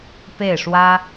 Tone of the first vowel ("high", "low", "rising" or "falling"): falling